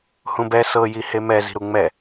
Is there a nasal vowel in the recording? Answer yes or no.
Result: yes